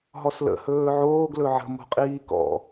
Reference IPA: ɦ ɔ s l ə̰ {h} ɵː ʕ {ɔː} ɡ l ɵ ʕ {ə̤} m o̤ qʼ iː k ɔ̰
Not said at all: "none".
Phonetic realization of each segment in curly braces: h, oː, ə̤

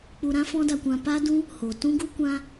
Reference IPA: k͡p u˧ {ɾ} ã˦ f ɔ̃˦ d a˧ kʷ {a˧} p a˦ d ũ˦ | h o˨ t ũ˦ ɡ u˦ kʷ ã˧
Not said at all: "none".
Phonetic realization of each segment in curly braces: ɾ, ã˧

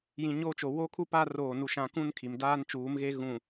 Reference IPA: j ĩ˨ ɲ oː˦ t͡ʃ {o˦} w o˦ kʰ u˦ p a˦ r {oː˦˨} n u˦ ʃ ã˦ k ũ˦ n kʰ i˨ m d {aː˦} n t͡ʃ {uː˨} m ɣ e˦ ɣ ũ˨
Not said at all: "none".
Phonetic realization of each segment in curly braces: o˨, oː˦˨, aː˦, uː˨˦

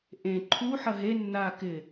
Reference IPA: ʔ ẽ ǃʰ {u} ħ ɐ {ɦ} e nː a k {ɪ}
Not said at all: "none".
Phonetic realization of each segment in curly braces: u, ɦ, ɪ

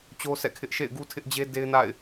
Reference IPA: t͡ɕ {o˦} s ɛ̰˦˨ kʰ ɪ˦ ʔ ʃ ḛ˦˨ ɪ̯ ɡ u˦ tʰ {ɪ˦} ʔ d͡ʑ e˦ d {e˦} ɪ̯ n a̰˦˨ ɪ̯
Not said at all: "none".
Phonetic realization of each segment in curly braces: o˦, ɪ˦, e˦

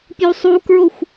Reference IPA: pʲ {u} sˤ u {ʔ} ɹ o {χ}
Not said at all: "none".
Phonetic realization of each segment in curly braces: u, k, xʷ

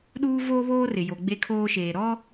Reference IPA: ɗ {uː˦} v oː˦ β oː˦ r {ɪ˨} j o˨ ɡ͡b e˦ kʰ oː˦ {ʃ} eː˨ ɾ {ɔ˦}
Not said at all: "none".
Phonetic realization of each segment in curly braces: uː˦, ɪ˨, ʃ, ɔ˦

